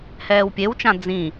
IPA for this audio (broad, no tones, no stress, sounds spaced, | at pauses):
h ɛː w pʲ e w t͡ʃ ã d͡z ĩ